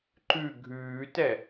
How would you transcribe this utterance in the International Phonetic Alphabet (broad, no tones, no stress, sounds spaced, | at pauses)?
ǃ ʉ ɡʱ ʉː t ɛ